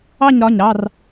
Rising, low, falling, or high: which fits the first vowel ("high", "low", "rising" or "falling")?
falling